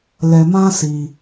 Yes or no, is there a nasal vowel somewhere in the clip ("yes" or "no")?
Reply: yes